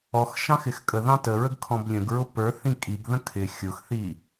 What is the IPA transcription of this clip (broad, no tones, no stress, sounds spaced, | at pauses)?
ɔ x ʃ ɑ̃ x ɪ x kʼ ə ð ɑ̃ t ə ɹ ə ɡ kʰ ɔ̃ b lʲ ə̃ ɡ ɹ ʊ p ə˞ θ ĩ kʼ i ɡ ð ə̃ kʰ ɪ xʲ ʊ x θ i